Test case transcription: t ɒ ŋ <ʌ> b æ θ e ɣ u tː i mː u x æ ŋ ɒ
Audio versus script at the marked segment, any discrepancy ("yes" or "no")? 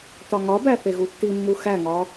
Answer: yes